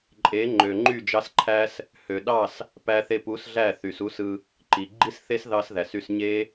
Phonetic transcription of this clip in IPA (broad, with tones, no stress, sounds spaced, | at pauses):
ǃʼ e˨˦ ŋ͡ǃ ø˨ ŋ͡ǃ y˦˨ d͡ʒ ɑ˦ s ǃʰ æ˦ s | h ø˨ ɗ ɑ˦˨ s | p æ˧ θ e˧ p u˨˦ s ɮ æ˦˨ θ y˨ s u˦ s ɯ˧ | ǃ i˨ ɡ͡ǃ i˦ s θ e˦ s ð ɑ˦ s ð æ˨ s y˧ s ɲ e˦